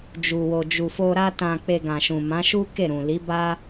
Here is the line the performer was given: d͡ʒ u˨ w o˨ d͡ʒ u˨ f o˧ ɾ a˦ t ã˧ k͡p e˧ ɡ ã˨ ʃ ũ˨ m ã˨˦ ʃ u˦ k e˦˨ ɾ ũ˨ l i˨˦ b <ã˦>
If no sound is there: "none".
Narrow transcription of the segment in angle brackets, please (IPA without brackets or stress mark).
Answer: a˦